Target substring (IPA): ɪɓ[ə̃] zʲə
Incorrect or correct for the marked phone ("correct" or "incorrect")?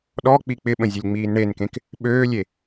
correct